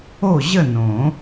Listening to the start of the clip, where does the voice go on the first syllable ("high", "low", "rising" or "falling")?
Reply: falling